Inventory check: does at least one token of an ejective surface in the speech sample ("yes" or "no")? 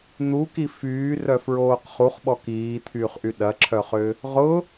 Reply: no